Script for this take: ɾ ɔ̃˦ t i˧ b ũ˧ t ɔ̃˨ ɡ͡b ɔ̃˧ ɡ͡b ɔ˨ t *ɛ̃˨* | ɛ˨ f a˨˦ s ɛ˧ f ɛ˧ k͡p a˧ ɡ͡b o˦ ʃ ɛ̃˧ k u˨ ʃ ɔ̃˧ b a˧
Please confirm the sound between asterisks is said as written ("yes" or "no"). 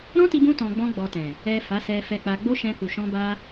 yes